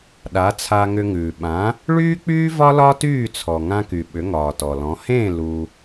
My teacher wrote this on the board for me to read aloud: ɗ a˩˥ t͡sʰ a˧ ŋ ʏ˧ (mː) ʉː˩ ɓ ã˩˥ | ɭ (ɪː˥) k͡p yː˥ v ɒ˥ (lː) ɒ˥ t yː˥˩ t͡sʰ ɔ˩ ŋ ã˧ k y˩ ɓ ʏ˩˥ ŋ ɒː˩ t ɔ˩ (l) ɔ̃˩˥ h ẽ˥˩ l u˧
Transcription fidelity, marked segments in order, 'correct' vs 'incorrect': incorrect: ŋ, incorrect: yː˥, incorrect: l, correct

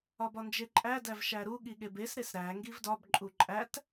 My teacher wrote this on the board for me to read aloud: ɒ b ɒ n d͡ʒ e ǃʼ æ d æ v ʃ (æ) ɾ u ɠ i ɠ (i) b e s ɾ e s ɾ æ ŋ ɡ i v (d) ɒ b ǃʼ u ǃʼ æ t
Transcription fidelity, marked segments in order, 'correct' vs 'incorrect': correct, incorrect: e, correct

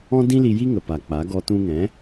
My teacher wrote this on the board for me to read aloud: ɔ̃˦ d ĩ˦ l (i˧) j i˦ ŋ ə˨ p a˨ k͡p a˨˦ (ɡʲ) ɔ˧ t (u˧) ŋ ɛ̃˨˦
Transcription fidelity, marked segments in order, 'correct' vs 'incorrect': correct, incorrect: ɡ, incorrect: ũ˧

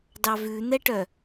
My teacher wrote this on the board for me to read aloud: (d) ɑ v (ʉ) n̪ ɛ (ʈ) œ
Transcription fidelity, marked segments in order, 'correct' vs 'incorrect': correct, correct, correct

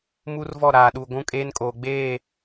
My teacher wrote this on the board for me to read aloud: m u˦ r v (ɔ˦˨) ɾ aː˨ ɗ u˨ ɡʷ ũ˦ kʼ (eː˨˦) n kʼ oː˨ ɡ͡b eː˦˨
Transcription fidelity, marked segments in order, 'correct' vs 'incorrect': correct, incorrect: eː˦

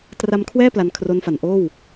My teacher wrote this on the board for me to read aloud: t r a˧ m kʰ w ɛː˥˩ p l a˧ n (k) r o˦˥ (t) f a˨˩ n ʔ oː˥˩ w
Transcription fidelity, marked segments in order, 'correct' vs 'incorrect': incorrect: kʰ, incorrect: n

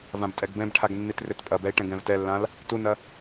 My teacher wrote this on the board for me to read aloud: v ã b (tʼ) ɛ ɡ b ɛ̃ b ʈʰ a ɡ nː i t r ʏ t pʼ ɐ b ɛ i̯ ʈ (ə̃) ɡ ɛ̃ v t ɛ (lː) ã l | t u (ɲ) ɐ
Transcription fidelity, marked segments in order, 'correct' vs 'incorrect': correct, incorrect: ɛ̃, correct, incorrect: n

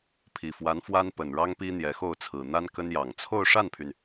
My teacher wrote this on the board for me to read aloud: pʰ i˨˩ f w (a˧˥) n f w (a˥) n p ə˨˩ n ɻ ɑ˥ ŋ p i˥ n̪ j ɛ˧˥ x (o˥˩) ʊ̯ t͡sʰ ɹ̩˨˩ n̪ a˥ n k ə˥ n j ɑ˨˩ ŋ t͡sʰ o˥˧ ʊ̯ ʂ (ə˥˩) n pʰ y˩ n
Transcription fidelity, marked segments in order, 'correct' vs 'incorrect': correct, correct, correct, incorrect: a˥˩

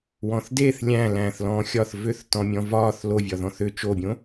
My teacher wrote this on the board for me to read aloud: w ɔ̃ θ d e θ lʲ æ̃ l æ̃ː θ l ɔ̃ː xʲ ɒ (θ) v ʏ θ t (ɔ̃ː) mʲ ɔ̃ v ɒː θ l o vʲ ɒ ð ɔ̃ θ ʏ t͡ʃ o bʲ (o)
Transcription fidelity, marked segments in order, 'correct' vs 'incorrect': correct, incorrect: ɔ̃, incorrect: õ

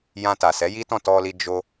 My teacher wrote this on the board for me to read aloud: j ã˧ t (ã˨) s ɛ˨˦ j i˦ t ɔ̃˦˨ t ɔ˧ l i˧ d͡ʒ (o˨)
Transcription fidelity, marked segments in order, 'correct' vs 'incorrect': incorrect: a˨, incorrect: o˧

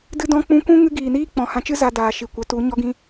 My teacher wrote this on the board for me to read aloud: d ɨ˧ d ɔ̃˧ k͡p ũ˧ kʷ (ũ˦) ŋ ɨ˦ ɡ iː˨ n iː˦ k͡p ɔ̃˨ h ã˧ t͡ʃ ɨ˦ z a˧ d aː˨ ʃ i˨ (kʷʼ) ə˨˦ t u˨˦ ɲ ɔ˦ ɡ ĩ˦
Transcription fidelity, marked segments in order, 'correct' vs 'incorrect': correct, incorrect: kʷ

